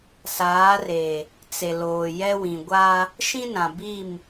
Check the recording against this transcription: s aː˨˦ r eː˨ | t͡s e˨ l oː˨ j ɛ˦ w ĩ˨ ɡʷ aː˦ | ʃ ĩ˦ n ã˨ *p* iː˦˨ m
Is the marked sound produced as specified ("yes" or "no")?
no